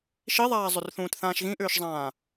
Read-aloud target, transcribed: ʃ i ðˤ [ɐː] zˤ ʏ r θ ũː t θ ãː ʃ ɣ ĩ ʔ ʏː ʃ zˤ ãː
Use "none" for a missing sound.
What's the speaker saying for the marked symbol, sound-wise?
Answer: aː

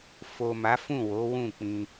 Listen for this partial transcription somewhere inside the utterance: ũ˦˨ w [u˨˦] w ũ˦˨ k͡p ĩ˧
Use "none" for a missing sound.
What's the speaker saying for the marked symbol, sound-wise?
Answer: o˨˦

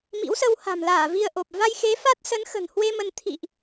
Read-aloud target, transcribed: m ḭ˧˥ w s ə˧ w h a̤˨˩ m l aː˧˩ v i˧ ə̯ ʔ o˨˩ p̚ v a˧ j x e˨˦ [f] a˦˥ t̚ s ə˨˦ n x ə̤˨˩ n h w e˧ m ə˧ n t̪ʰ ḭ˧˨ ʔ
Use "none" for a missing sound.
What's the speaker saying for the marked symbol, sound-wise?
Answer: f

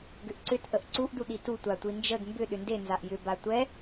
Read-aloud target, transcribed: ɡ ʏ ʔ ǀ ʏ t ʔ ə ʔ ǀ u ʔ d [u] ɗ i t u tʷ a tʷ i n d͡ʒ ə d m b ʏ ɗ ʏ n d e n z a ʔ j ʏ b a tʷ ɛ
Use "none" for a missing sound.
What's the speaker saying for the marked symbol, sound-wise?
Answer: u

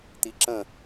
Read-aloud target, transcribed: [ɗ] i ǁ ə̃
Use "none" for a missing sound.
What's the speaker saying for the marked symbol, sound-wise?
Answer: t̪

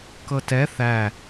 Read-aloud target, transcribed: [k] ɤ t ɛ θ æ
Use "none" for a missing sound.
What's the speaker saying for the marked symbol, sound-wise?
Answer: k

